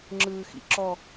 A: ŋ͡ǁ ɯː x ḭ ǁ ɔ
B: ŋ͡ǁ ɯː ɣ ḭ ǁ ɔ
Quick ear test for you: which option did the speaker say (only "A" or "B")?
A